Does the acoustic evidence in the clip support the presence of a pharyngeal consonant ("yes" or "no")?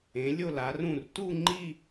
no